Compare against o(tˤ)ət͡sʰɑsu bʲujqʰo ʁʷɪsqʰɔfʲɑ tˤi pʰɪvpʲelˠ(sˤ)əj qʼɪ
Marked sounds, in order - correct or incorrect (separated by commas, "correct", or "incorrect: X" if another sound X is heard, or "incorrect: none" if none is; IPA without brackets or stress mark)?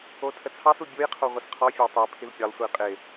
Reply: incorrect: tʰ, incorrect: sʷ